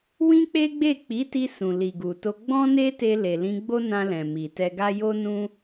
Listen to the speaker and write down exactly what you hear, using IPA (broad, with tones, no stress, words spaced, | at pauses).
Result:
wĩ˦k͡pe˦ɡ͡be˦˨ k͡pi˨˦ti˧ sũ˨li˨ɡu˨to˧ ɡ͡bɔ̃˦ne˦te˧ le˨lĩ˧ɡ͡bo˦nã˧ lɛ̃˨mi˨tɛ˧ɡa˦ jo˦nũ˦